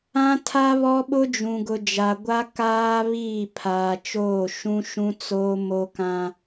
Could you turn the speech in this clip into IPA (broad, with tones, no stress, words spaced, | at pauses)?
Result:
ã˦tʰa˦βɔ˦ ɓʊ˦d͡ʒũ˨ɡʊ˨d͡ʒa˨ ɡʷa˦kaː˦ βiː˦˨ pʰaː˨t͡ʃoː˦˨ ʃũ˦ʃũ˦t͡soː˦ mo˦kã˦